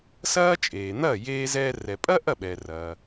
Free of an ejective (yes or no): no